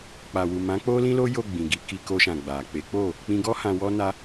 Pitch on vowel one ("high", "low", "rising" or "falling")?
low